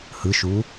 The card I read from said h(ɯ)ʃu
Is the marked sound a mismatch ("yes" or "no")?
no